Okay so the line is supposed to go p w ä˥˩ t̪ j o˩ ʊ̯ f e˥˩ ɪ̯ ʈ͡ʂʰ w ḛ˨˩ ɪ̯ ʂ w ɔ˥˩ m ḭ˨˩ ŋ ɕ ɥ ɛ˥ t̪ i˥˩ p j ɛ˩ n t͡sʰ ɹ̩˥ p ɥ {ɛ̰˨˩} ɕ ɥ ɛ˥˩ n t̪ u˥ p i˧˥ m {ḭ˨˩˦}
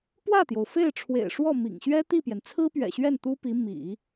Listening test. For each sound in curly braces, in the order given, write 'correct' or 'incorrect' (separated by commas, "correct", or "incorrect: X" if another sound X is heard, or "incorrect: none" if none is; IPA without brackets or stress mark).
correct, correct